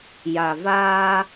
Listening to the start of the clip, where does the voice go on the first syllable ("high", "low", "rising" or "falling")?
low